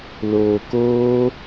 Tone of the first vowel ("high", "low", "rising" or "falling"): low